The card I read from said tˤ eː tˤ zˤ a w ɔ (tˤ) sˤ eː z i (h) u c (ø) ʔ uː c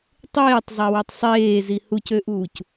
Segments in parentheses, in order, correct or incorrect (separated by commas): correct, correct, correct